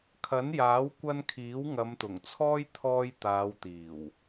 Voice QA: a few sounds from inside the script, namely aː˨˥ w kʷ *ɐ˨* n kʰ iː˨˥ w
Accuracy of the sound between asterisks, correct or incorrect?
incorrect